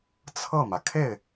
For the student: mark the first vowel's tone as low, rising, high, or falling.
falling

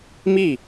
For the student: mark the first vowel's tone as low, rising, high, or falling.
falling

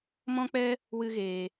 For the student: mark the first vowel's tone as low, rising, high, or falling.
high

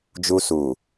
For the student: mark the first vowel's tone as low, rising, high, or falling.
high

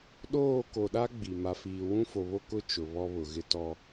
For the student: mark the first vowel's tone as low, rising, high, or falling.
falling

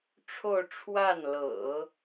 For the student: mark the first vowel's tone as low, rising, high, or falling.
falling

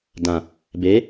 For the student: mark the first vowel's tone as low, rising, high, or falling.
low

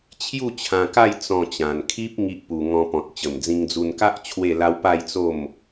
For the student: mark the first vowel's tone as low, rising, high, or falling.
falling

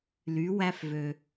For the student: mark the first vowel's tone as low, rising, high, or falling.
rising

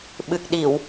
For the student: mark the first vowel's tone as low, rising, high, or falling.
low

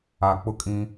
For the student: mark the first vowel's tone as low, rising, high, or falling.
low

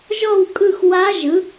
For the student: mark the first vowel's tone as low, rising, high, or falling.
falling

